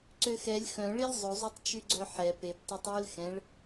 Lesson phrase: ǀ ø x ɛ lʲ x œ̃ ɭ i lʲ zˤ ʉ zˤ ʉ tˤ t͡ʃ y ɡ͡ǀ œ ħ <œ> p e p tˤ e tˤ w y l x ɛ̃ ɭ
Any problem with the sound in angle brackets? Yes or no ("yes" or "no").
yes